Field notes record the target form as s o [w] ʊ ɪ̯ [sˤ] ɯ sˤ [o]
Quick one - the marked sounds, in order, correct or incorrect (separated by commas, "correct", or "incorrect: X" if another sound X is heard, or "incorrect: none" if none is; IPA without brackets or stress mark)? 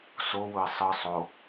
correct, correct, correct